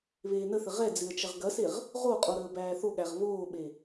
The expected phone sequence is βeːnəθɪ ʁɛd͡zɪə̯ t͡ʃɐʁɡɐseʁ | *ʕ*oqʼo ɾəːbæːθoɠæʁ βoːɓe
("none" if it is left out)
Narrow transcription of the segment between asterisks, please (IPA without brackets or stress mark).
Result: ʁ